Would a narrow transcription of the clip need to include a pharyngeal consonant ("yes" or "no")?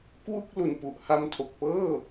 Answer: no